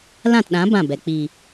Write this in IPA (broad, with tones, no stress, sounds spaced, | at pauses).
l ã˦˨ t ɗ ã˨˦ b ã˦˨ b ɛ˨ k͡p i˨